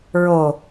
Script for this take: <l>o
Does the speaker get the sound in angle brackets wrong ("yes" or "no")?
yes